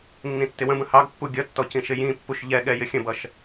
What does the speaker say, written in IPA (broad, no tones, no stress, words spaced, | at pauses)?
nːĩtːɪwə̃bə̃ hɑɡpːu ɡʲʌtːɔ cĩʃɪjĩpːuʃ ʎɛɠɛ jɪxʲə̃bʌʃ